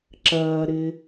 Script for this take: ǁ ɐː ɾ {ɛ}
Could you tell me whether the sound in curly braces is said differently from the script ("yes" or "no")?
yes